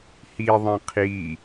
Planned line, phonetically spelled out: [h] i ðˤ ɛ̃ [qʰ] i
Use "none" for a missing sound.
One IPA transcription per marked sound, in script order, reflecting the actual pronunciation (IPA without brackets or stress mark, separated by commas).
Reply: h, qʰ